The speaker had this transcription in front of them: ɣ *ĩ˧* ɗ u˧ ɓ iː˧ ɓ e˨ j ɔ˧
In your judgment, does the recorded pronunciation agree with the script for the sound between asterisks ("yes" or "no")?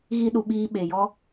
no